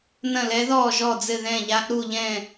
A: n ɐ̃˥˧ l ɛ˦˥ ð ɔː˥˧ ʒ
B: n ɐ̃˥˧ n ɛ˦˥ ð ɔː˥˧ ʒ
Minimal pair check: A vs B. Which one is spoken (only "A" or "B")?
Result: A